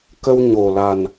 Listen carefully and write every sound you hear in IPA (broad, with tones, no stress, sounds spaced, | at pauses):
k ə˧ w ɲ o˨˩ l a˨˩ n